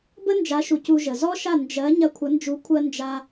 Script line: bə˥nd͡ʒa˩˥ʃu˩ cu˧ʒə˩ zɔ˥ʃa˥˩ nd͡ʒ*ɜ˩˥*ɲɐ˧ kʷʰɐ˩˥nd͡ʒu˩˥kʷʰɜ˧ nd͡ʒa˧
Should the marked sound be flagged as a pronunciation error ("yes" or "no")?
no